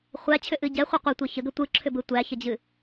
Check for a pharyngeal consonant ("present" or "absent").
absent